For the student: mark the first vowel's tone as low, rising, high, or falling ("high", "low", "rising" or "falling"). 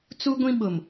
high